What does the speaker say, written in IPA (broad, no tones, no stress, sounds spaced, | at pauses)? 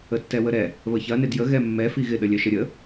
ə tː ɛ w ə ɾ ɛ | β ə ç ɐ n ɪ d j ə ɣ ɛ mː ɛ f i ɣ ɪ ɗ ə lʲ œ ʃ ə ɾʲ ə